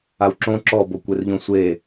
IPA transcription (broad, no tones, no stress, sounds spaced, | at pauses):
a w ǁ õ ǁ ɔ b o kʷ e r ʎ õ sʷ e